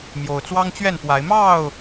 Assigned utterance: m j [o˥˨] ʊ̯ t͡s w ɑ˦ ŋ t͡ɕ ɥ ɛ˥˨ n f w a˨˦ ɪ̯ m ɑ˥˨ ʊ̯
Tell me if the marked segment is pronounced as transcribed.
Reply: no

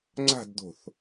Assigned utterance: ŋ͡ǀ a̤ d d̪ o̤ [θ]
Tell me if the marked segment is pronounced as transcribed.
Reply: yes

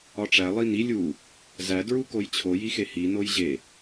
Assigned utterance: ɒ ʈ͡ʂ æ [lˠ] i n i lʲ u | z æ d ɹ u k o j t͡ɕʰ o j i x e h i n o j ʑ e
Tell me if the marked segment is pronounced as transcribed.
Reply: yes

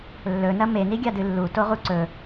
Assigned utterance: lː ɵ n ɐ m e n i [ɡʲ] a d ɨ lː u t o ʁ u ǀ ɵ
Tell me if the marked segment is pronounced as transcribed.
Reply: yes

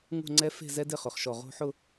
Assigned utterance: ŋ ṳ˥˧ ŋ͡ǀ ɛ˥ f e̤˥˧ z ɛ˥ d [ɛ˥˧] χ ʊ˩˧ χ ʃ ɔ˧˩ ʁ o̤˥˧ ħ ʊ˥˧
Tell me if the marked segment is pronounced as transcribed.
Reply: no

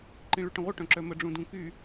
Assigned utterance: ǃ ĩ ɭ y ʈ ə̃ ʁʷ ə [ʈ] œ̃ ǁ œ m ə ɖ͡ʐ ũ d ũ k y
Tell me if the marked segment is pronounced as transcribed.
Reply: yes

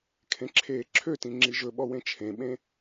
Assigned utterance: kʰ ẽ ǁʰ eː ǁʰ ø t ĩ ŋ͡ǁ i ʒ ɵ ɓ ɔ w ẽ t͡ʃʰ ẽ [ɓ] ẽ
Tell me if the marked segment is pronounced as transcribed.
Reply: yes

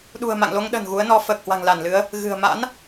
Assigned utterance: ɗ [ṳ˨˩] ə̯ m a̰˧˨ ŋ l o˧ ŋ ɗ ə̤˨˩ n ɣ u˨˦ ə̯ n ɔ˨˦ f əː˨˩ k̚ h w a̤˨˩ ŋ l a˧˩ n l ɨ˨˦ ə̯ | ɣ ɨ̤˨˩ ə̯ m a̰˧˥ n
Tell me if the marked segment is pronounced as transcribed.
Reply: yes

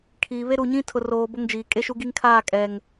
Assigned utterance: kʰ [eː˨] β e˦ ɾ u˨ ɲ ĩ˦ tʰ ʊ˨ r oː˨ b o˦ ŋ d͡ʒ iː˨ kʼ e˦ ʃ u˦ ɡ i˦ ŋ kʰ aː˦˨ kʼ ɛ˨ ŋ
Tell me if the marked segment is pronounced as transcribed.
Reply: no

